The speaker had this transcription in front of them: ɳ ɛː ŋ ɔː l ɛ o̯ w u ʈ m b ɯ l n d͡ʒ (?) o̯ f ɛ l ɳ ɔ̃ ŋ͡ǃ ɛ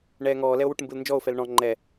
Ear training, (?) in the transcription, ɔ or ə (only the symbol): ɔ